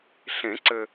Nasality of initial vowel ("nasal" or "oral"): nasal